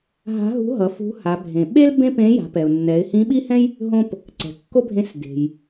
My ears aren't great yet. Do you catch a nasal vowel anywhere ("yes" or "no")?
yes